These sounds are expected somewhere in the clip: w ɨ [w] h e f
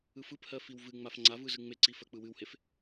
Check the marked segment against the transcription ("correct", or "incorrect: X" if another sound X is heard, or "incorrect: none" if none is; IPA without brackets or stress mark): correct